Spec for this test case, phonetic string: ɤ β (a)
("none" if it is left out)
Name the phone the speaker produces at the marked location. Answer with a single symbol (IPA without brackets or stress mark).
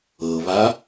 a